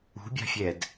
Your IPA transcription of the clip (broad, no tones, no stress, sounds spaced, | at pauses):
ṳ bʲ ɑ̤ fʲ ɛ d